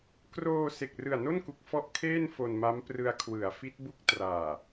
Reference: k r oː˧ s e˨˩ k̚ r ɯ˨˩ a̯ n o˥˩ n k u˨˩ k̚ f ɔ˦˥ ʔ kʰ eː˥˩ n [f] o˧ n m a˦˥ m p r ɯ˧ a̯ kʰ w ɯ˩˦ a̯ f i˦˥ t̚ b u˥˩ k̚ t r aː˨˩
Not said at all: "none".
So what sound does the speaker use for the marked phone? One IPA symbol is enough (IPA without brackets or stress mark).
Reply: f